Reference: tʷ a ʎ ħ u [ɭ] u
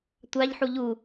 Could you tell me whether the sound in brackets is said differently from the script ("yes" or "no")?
yes